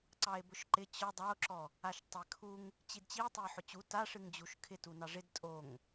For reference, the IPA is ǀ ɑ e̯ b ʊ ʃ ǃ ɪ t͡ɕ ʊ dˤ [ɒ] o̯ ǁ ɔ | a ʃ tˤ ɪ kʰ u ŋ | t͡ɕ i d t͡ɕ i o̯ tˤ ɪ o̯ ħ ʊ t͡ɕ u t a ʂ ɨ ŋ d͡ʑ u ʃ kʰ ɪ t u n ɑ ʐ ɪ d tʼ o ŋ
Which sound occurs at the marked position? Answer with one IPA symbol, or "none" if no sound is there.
ɑ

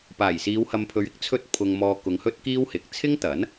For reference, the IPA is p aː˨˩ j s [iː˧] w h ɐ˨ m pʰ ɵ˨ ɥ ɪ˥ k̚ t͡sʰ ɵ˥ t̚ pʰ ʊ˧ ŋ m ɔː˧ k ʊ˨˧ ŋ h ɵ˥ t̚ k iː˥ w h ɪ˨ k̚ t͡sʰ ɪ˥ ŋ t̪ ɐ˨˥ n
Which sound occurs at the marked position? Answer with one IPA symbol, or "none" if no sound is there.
iː˨˧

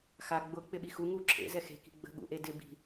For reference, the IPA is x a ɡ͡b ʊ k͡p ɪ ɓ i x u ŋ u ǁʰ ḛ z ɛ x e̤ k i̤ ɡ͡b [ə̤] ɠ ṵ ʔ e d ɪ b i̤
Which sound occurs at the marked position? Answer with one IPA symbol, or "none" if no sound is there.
ə̤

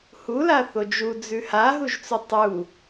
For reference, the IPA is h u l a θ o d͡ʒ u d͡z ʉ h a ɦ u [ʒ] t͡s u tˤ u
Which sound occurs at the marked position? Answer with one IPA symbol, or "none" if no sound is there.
ʒ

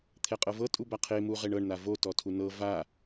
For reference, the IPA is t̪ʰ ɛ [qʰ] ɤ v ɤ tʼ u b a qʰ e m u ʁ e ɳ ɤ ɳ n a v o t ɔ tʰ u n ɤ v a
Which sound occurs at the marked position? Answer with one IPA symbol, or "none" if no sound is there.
qʼ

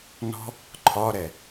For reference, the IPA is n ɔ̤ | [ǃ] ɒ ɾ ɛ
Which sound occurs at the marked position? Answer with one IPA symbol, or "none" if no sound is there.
ǃʰ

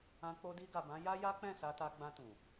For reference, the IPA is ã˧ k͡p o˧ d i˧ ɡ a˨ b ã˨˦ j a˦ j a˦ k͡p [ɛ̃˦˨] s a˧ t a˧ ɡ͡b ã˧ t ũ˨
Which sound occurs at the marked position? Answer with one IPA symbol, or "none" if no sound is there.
ɛ̃˦˨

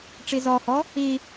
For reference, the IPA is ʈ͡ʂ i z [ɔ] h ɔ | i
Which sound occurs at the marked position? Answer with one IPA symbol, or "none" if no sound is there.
ɔ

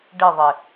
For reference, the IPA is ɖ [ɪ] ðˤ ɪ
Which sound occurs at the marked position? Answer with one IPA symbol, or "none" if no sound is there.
ɪ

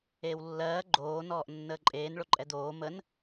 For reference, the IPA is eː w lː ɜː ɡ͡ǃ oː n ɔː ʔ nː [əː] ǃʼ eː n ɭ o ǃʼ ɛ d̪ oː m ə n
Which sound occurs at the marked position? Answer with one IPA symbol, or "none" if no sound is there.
əː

